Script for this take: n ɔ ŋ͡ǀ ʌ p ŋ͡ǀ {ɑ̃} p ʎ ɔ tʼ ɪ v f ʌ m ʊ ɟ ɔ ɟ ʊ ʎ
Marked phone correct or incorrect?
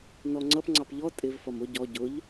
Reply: incorrect: ɑ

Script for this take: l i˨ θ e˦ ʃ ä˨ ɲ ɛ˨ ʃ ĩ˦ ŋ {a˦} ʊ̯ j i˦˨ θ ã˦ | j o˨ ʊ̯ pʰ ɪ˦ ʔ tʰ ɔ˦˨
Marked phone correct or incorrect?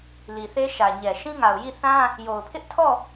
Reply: incorrect: a˨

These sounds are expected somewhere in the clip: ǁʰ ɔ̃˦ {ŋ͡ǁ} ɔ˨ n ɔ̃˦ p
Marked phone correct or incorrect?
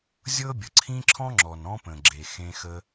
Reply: correct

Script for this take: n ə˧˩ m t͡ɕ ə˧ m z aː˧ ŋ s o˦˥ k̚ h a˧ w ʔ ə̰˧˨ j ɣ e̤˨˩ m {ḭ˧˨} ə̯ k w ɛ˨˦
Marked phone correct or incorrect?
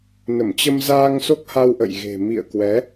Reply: correct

